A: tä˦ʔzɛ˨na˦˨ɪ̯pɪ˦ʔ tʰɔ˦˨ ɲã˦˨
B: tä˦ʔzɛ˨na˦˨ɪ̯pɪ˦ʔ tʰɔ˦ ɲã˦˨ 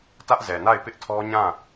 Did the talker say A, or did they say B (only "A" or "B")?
B